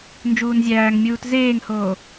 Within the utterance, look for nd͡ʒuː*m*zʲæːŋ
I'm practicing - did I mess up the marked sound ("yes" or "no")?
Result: yes